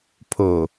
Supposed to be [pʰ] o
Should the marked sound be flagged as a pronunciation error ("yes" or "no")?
no